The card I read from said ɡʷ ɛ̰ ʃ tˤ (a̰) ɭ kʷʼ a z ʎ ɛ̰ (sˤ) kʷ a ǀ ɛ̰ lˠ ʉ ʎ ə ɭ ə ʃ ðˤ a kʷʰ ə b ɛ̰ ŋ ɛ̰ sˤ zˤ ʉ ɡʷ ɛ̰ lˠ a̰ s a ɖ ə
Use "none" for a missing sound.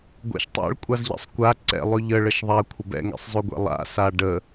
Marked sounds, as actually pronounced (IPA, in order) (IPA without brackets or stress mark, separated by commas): a̰, sˤ